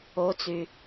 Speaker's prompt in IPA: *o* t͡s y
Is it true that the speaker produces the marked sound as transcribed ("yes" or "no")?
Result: yes